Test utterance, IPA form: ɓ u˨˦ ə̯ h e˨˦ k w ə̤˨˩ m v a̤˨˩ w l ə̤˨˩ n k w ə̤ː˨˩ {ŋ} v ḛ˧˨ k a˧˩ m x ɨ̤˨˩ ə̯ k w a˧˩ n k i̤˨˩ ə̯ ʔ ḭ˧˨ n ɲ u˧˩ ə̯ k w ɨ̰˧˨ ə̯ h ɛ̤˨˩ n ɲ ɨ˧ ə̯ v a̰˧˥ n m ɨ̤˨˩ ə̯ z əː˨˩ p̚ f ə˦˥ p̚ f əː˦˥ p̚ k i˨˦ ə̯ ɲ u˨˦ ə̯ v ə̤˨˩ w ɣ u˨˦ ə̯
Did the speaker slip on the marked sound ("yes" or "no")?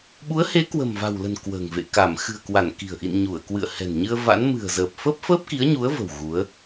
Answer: no